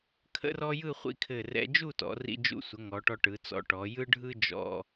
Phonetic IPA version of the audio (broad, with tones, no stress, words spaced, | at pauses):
kʰə̰˥rɔ˥ jɯ˥˧χʷḭ˥˧kʰɘ˧˩ rɛ̰˧d͡ʒu˥˧tɔ̰˩˧ rḭ˧d͡ʒṵ˧sʷə˩˧ ŋɔ˩˧ʈɔ˧ʈɯ˩˧t͡sɔ̰˧ ʈɔ˩˧jɯ˥ɖʱɯ˥ d͡ʒɔ̰˧